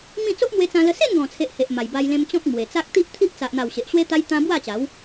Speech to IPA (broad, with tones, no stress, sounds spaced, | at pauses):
m ĩ˥˧ t͡s o˦ ʔ m w e˧ t͡s ã˧ l ə˧ s e˥˧ n ɡ ɔ̃˨˩ t͡sʰ e˨ ʔ h e˨ ʔ m a˨˩ j b a˧ j l ẽ˧ m t͡ɕ ɔ̃˦ k̚ m w e˨˩ t͡s a˦ k̚ t̪ i˦ ʔ t̪ʰ i˦ ʔ t͡s a˨ ʔ n̪ a˨˩ w ɕ e˨ ʔ ɕ w e˦ t̪ a˦ j t̪ ã˦ b w a˥˧ t͡ɕ a˨˦ w